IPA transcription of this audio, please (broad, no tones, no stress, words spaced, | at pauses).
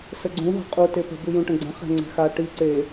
səɡ͡ǀũ ɦə̤qʼu tepə̤ bʉjũʈə̃ɡ͡ǀə̃ χɛ̤ŋ͡ǀɛ̤xa ʈi ǀe